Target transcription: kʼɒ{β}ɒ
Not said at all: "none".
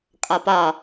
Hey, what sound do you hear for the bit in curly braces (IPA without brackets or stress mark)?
p